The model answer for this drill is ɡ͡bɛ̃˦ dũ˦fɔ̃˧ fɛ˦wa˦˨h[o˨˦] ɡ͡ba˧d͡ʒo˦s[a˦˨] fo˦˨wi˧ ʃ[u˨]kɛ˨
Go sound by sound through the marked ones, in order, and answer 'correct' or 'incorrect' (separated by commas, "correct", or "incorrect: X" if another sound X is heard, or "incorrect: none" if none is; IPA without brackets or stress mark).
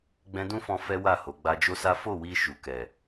correct, incorrect: a˦, correct